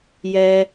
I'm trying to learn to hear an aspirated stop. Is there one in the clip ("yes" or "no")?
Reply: no